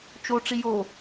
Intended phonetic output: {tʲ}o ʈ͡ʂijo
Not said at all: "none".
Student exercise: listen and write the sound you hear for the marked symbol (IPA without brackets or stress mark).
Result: t͡ʃ